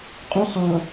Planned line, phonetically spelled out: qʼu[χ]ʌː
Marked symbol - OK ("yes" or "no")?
yes